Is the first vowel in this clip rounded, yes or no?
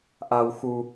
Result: no